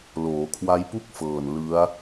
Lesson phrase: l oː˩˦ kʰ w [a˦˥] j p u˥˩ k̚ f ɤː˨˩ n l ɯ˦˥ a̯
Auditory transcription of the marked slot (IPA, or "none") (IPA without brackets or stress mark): a˦˥